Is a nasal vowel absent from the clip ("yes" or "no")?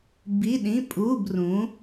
no